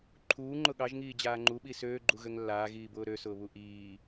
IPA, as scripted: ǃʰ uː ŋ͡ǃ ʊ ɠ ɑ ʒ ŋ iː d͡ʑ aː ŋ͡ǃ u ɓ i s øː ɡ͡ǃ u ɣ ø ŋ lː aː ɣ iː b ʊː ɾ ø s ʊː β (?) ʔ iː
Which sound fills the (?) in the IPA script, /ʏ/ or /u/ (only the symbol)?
u